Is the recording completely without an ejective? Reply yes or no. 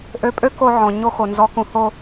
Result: no